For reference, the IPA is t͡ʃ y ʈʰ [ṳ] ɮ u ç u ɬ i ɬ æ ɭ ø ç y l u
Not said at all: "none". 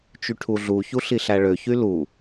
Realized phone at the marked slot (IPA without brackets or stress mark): u